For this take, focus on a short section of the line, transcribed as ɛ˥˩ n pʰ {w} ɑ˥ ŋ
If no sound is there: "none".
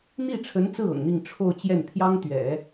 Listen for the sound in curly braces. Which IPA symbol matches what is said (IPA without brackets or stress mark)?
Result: j